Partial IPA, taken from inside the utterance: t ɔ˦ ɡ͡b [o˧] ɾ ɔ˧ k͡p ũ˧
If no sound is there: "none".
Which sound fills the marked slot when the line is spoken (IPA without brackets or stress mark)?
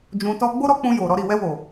o˦